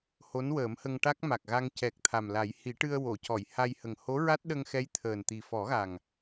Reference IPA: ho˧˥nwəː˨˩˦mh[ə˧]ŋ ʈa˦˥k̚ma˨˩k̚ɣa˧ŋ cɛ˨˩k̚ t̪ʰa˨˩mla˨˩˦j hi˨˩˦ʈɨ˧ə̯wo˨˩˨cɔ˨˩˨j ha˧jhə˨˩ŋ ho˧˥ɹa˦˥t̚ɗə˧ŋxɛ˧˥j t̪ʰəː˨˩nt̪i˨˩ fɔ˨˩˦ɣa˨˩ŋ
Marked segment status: correct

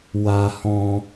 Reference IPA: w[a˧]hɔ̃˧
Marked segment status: correct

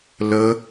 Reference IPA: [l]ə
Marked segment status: correct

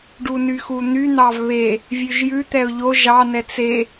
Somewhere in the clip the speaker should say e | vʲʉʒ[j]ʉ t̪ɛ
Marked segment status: correct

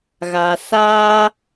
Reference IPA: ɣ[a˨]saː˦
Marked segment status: correct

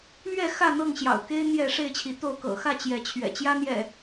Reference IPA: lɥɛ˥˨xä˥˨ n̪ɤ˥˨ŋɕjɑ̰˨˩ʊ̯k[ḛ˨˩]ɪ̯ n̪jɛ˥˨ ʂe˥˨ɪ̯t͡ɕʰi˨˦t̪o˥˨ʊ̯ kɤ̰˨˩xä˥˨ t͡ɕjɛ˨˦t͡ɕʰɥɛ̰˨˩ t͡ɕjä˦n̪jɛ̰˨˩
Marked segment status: incorrect: e˦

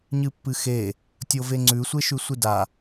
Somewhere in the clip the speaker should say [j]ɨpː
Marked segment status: incorrect: ɲ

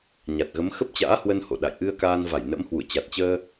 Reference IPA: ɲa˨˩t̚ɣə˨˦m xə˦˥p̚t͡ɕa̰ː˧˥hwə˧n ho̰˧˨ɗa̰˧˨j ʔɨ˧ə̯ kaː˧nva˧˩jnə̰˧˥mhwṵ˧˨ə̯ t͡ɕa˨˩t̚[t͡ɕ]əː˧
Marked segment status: correct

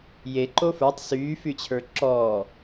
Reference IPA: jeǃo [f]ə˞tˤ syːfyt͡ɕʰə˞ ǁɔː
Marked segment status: correct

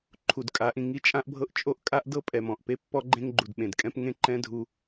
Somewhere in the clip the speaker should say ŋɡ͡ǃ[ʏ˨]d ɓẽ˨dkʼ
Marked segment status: incorrect: u˨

